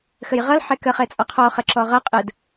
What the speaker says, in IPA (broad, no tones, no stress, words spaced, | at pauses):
xəjʁʌl ħɛkə χɛt͡sʼɒqʰɔ χəǁɔʁʌ qʼəd